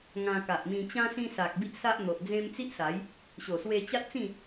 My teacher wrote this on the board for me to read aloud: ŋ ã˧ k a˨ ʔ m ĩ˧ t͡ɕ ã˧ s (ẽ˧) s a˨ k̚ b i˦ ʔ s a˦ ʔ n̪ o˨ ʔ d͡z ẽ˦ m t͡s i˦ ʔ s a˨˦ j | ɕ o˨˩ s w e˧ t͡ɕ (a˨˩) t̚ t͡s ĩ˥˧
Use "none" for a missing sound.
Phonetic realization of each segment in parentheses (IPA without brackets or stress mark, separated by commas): ĩ˧, a˦